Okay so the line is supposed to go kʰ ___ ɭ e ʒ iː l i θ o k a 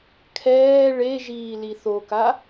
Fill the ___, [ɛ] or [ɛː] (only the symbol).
ɛː